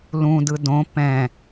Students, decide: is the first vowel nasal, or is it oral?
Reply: nasal